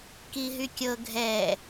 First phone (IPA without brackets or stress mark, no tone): k